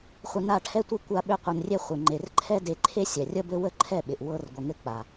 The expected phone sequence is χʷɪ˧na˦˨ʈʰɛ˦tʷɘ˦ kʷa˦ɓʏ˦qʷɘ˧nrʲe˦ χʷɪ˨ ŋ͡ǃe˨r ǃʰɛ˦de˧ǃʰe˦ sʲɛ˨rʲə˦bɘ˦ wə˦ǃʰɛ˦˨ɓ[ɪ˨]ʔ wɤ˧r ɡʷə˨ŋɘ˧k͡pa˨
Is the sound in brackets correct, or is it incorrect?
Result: correct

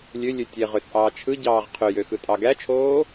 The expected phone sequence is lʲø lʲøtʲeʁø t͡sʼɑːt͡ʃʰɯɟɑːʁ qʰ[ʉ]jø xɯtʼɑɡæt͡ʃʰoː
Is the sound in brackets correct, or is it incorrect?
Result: incorrect: ø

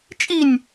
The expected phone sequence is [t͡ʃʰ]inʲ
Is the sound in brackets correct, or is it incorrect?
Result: incorrect: t͡ʃʼ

